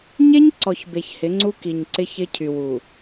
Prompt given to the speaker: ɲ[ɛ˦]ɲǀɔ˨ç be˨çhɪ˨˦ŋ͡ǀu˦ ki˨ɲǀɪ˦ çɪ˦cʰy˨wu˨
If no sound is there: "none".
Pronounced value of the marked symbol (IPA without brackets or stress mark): e˦